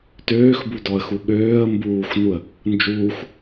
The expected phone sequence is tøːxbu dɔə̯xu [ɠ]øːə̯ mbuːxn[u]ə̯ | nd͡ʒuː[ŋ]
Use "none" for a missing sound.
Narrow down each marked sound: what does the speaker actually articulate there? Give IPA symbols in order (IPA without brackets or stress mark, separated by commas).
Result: ɠ, u, x